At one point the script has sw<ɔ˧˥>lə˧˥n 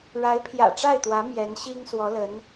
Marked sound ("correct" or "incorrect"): correct